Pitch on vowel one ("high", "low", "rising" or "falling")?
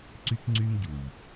high